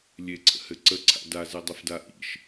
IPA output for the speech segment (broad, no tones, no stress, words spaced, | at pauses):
lʲeǀʰə̰hɘ ǀəǀʰa̰ dazedˤɘfda ʔḭʃ